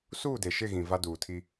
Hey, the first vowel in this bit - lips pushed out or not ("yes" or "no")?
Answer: yes